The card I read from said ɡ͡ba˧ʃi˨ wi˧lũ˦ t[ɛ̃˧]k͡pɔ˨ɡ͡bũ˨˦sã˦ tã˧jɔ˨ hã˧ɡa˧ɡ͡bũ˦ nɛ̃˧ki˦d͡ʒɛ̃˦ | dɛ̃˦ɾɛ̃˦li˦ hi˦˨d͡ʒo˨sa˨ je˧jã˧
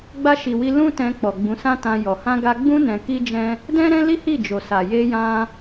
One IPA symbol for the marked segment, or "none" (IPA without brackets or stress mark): ɛ̃˧